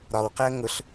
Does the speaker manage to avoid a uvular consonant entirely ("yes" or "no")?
no